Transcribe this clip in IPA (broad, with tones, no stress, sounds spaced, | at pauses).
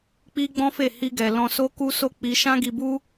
k͡p i˦ ɡ͡b ɔ̃˦ f e˦˨ h i˧ ɡ ɛ˨ l ɔ̃˧ s o˦ k u˦ s o˦ k͡p i˧ ʃ ã˦ ɡ i˧ b u˦